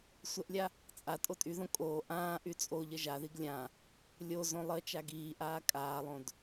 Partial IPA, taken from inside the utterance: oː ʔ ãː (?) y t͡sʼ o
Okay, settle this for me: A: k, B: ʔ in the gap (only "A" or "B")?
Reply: B